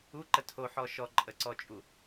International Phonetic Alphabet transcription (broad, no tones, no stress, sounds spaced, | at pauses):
u ǃ ə tʰ o ħ ɔ ʃ ɔ ǃʼ ə ǀ ɔ t͡ʃʼ u